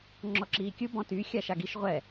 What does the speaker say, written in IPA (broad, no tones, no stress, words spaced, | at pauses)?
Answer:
ŋ͡ǁɔǁiːkʲɯ bɔ̃ty xʲaʃaɡiʃ ʁʷɛ